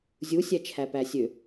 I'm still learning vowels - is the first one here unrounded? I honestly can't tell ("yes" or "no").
no